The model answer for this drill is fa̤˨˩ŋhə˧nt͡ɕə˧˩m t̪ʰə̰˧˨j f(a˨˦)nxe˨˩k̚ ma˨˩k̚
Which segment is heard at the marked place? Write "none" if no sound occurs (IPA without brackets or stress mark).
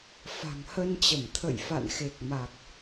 a̰˧˨